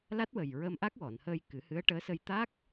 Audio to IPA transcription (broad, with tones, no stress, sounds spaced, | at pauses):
l a˦˥ t̚ w ə˨˩ j ɹ ə˧ m ʔ a˦˥ k̚ w ɔ˨˩˨ n h əː˧ j k ɨ˨˩˦ h ɨ˧˥ ə̯ ʈ əː˧˥ s ə˧ j t̪ a˦˥ k̚